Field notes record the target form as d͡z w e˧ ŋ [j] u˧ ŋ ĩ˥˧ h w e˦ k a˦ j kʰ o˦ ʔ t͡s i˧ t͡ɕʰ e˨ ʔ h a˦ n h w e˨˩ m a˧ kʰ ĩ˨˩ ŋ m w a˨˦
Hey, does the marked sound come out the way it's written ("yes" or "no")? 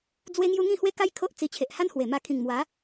yes